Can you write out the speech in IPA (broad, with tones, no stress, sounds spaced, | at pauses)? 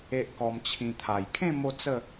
e˦ ʔ k ɔ˧ m t͡ɕʰ ĩ˧ t̪ʰ a˨˩ j kʰ ẽ˥˧ m o˦ t͡s ə˥˧